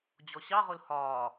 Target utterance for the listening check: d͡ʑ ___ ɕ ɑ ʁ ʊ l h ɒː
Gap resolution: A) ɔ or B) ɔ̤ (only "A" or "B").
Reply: A